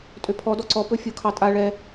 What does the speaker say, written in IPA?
tʼ ø pʰ ɔ d ɔ ǀ ɔ p ɵ fʲ o kʰ ɑ tʼ a ɭ ɛ

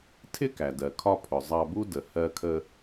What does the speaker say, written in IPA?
tʰ ɪ˥ k æ˩ d ɜ˩ kʰ ɒ˧ pʰ ʊ˩ zˤ ɑ˧ b u˥ d ə˩ h ɜ˧ kʰ ə˧

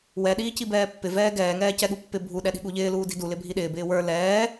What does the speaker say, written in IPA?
w ɛ ɗ iː c i b ɛː pː ɪ v ɛː ɡ ɛː ŋ ɛː c ɛ ɠ u pː ɪ bʱ u ɗ ɛ ɗ i̤ ɠ u ʎ ɪː l uː d i̤ d u l ɪ bʱ i ɗ ɪː b ɪː w ə˞ l ɛː

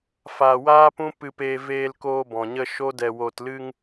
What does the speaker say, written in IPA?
f aː˧ w aː˦ p ũ˦ p ɨ˧ p eː˧ v eː˧ l k oː˧ b ɔ̃˨ ɲ ə˧ ʃ o˦ d ɛ˧ w oː˧ t l ɨ˧ ŋ

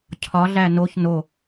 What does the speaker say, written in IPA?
cʰ ɒ ɮ æ n o ç n o

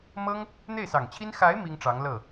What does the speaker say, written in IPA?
m ɤ˥ ŋ | n̪ e˥˩ ɪ̯ s ɑ˨˩ ŋ t͡ɕʰ i˥ n x a˧˥ ɪ̯ m i˥ ŋ ʈ͡ʂ ɑ˧˥ ŋ l ɤ˥˩

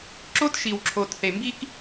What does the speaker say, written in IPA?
ǁ o˦ t ʃ i˨ w ǁʰ o˨ t θ e˨ m b i˦ k

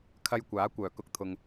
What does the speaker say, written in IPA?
kʰ ɐ˧ j kʷ aː˨˥ kʷ œː˨˩ k ʊ˧ k̚ t̪ʰ ʊ˨ ŋ

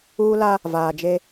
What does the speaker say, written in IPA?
uː˦ l a˦ | v aː˨ d͡ʒ e˦

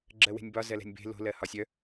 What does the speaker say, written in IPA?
ɡ͡ǁ ɜ w e̤ nʲ b ɒ z ɜ l ɛ̤ nʲ b e̤ l o̤ l ɜ h ɒ sʲ œ

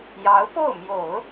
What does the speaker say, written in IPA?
j ɑ˧˥ ʊ̯ p o˥˩ ʊ̯ m j o˨˩˦ ʊ̯

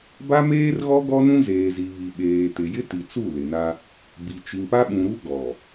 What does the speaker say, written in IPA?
b a˦ m eː˦ r ɣ ɔ˦ ɡ ɔ˦ n ũ˦ z eː˨ z i˨ β i˨ ɓ eː˨ t ɪ˨ j ɪ˦ t i˨ t͡s u˦˨ l ɪ˨ n a˦ | b i˨ t͡ʃ i˨ ŋ p a˦ ɓ ũ˨ ɾ u˦ ɡ ɔ˨

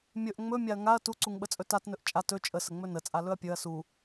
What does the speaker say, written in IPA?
mʲ ɵ ʔ ŋ͡m ɵ mʲ a ɐ̯ ŋ a ɐ̯ t u ǀ u ŋ ɓ ə t͡sʼ ɵ t a t n ɵ ʔ t͡ʃʼ a t ɵ t͡ʃʼ ə s ə ŋ͡m ɵ n ə t͡sʼ a l ɵ ɐ̯ pʲ ɵ ɐ̯ s u

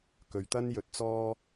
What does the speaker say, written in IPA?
k ɵ˨ ɥ t̪ ɐ˥ n j ɵ˧ t̚ t͡s ɔː˥

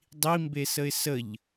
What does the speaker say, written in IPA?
dˤ i m b e s ə ɪ̯ s ə ʎ

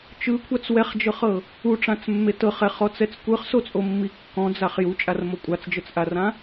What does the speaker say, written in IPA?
t͡ʃ ɯ kʷʰ a t͡s w ɛ χ d͡ʒ ɤ χ ɤ | u ʈ͡ʂ ã t͡s mː e t ɤ χ ɛ χ ɔ t͡s ɛ t͡s kʷ ɯ χ s o t͡sʼ o mː i kː ɔ̃ d͡z a χ j u t͡ʃʼ a r m o kʷʼ a t͡s d͡ʒ ɤ t͡s ʔ a r ã

